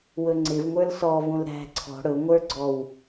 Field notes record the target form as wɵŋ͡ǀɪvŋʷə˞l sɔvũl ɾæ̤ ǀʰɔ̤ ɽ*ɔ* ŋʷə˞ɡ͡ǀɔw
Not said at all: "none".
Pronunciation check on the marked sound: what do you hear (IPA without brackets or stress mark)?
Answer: ɵ